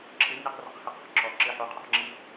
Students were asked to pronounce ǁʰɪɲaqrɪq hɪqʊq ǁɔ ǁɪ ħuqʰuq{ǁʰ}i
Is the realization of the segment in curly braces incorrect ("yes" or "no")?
yes